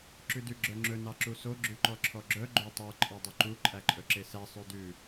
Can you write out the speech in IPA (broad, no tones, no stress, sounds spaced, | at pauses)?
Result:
ǁ ʉ d ʉ ɡ͡ǁ œ ŋ͡ǁ ɵ n ɑ ǁ u s o ɡ͡ǁ ʉ ǃ ɔ ǁʰ ɔ ɡ͡ǁ œ ɡ͡ǃ o tˤ œ ǃʼ ɑ dˤ ɵ ǃ u ǃʼ æ ǃʼ ɵ ǁ e s æ sˤ ʉ d ʉ